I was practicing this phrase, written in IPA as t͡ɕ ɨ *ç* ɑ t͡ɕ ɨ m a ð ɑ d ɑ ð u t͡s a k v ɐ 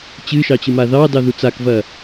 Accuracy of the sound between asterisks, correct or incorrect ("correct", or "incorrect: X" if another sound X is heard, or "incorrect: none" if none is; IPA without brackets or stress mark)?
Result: incorrect: ʃ